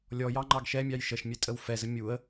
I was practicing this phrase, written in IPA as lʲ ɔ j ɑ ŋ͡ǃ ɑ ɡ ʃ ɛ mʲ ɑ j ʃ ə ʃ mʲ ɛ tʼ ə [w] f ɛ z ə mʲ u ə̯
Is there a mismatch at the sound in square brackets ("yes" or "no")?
no